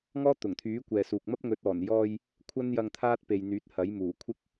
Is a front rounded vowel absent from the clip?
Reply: no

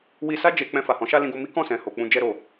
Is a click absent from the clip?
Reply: yes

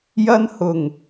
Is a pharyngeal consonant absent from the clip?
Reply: yes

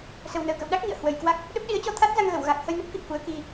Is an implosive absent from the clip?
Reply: no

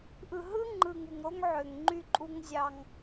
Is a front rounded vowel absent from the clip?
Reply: no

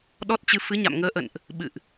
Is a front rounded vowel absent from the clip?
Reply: yes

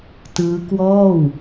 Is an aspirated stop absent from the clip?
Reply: yes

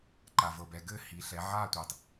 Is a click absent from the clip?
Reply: no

